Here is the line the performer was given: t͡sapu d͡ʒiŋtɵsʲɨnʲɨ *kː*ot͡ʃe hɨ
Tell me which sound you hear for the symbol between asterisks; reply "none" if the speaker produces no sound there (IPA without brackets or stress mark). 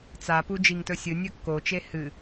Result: kː